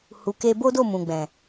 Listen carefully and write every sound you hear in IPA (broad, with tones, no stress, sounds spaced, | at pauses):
h u˨ k e˧ b o˦ d o˦˨ m ũ˨ ɡ͡b ɛ̃˨